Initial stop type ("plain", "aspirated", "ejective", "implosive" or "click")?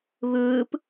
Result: plain